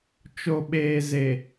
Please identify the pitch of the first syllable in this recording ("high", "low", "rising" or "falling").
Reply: low